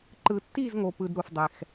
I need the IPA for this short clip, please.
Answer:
ǃɯ˩tːi˥˨z ŋo˩pɯ˩d ɾu˩fdˤɛ˩x

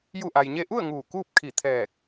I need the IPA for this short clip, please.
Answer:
ju˧˩ʔa˩jɲe˧ʔu˥˨ə̯ ŋuː˧˩kuː˥˨p̚ kʰi˧˩t̪ʰɛː˧˩k̚

